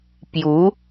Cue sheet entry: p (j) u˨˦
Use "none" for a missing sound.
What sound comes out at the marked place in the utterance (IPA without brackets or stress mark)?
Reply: j